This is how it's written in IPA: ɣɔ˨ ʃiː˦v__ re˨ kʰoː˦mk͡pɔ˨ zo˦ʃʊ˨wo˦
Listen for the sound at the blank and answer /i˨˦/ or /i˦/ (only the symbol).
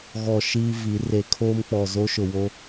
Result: i˨˦